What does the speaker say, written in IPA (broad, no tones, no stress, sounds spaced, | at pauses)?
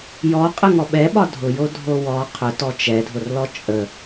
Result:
j ɔ qʼ ə ŋ ɔ ɓ ɛ ɓ ɒ dʱ ʊ j o dʱ o w ɔ qʰ ʊ t ɔ t͡ʃ ɛ dʱ ʊ r l ɔ t͡ʃʼ ə